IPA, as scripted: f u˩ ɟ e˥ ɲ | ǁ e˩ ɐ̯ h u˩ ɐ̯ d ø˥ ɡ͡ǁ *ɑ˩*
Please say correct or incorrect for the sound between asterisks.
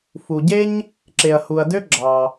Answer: correct